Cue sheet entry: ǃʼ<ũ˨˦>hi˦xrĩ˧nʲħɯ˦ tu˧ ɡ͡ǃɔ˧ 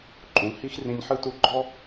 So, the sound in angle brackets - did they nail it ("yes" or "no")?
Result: yes